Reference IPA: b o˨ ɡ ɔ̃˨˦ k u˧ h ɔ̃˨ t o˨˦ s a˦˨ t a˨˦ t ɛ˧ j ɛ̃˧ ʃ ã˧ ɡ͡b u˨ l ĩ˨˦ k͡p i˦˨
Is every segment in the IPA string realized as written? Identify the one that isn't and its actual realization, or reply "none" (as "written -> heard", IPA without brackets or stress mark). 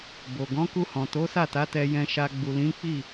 ã˧ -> a˧